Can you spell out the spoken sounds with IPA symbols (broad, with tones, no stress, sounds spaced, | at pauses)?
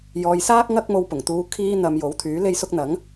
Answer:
j ɔː˨ j s aː˥ k̚ ŋ ɐ˥ k̚ m o˧ w p ʊ˨˩ ŋ t̪ uː˧ kʰ iː˧ n̪ ɐ˨ m j o˨˥ w t̪ʰ yː˨˥ l e˥ j s ʊ˥ k̚ n̪ ɐ˨˥ ŋ